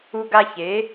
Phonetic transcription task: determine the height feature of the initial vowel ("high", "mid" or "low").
high